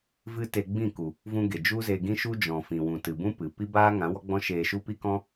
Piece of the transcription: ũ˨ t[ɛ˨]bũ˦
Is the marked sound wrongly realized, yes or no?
yes